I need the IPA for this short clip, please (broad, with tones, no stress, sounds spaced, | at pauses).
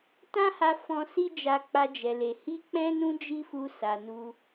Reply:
t ã˦ h a˧ f ɔ̃˧ s i˦ d͡ʒ a˧ k͡p a˧ d͡ʒ ɛ˨ l e˨ h i˧ k͡p ɛ̃˧ n ũ˧ d͡ʒ i˦ f u˧ s a˨ n u˧